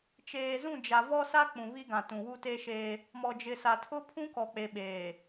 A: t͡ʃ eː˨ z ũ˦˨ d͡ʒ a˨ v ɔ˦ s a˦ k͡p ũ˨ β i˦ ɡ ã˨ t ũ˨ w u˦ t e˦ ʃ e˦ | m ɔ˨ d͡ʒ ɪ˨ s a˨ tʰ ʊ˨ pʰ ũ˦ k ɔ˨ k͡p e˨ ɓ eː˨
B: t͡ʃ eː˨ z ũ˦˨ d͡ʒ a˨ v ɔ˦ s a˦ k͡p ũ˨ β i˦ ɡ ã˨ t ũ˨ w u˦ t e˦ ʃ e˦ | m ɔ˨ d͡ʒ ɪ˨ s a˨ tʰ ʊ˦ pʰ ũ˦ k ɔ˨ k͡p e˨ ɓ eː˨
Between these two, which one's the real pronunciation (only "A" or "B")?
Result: B